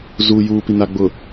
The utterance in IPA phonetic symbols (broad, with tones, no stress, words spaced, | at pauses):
zuː˨juː˨pi˨ na˨ɡ͡bʊ˨